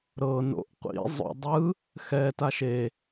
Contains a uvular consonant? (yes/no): yes